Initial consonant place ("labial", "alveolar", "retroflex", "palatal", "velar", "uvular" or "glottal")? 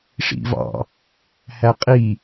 retroflex